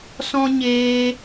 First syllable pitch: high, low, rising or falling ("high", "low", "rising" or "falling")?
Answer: high